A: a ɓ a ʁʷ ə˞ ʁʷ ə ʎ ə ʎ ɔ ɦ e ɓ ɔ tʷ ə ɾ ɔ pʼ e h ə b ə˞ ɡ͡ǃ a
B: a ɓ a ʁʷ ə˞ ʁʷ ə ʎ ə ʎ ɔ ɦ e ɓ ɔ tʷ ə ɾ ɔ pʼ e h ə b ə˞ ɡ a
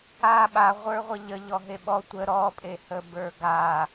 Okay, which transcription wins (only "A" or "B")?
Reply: B